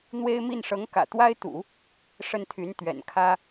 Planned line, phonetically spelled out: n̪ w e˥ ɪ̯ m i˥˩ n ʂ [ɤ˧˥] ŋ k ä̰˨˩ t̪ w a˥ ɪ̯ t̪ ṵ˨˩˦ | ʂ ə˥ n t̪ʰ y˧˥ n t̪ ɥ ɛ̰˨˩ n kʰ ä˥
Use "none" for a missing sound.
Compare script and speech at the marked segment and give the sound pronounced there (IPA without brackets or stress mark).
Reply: ɤ˧˥